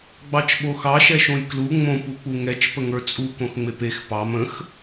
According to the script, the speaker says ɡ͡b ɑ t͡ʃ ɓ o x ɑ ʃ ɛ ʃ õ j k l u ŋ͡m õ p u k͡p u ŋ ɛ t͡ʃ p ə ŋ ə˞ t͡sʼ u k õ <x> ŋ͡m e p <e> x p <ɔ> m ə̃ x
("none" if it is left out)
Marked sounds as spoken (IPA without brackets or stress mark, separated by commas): x, e, ɑ